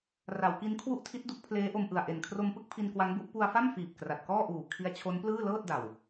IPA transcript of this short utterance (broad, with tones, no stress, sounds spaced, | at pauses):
r a˩˦ w k i˦˥ n kʰ w u˥˩ ʔ tʰ i˦˥ t̚ d u˦˥ k̚ pʰ l eː˦˥ ʔ o˧ m ʔ ɯ˨˩ a̯ ʔ e˨˩ n kʰ r o˧ m p ɯ˥˩ k̚ pʰ i˧ n k w a˦˥ ŋ b u˦˥ ʔ p u˧ a̯ f a˥˩ m f iː˨˩ p̚ k r a˨˩ t̚ k ɔː˥˩ ʔ uː˨˩ kʰ i˦˥ a̯ t͡ɕʰ o˦˥ n p l ɯː˥˩ l ɤː˥˩ t̚ d a˨˩ w